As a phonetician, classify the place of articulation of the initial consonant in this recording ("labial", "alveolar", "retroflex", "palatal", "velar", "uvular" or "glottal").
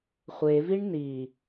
uvular